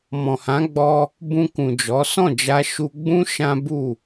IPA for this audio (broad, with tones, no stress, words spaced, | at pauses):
mɔ̃˨hã˨˦ɡ͡bɔ˧ | bũ˧kũ˨d͡ʒɔ˨˦ sɔ̃˦˨d͡ʒa˧ ʃu˧ɡ͡bũ˦ ʃã˦ bu˦˨